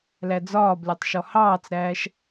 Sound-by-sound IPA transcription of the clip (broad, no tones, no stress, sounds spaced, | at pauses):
l æ d͡z ɒː b lʲ ɒ tˤ ʃ ɔ h ɑː t͡s ɾ æː ʃ